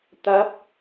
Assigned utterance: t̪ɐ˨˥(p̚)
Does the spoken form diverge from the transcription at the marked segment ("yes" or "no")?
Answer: no